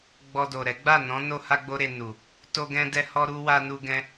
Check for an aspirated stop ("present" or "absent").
absent